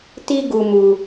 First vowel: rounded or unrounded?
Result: unrounded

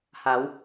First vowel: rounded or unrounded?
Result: unrounded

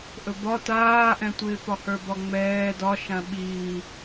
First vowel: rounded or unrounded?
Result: rounded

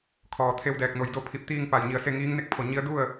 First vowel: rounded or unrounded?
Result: rounded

